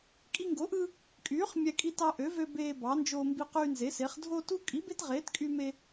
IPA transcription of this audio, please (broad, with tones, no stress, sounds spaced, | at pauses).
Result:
kʼ i˦ ŋ ɡ o˨˥ ʔ ɯ˦ | kʼ yː˨˥ χ mʲ æ˦ kʼ i˦ t ɑ˦ ʔ ø˨˥ v ø˦ b eː˦ b ɑ˨˥ n d͡ʒ oː˦ m b i˦ q yː˦ n z e˨˥ s e˨˥ χ dʱ o˦ t u˦ kʼ i˨˥ b e˦ t ʁ eː˨˥ t kʼ y˦ m e˦